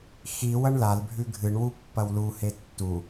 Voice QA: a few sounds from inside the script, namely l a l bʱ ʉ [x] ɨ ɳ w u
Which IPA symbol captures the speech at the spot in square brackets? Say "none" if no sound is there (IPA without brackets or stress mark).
ɡʱ